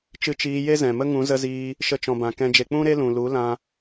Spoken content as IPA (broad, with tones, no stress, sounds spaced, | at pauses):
t͡ʃ ɨ˧ t͡ʃ iː˧ j e˦ z ɛ̃˨ m ə˦ ŋ ũ˨˦ z ə˧ z iː˧ | ʃ ə˧ t͡ʃ ɔ̃˨ b ã˨ k ɛ̃˧ d͡ʒ e˧ k͡p ũ˦ ɾ e˦ l ũ˨ l u˨˦ l ã˧